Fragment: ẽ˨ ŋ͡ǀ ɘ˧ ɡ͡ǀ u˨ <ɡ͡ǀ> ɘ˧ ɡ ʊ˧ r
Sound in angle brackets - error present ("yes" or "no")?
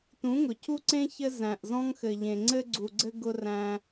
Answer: no